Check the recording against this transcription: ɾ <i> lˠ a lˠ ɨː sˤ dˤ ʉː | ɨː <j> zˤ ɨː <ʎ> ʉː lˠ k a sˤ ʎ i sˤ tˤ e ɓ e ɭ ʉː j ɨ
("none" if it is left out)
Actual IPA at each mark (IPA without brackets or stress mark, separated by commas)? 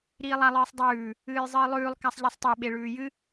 iː, j, lˠ